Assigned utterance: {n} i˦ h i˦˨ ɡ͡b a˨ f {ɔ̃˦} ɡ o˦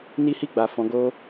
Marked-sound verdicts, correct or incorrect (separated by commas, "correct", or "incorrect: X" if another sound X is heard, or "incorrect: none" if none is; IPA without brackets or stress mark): correct, incorrect: ɔ̃˨˦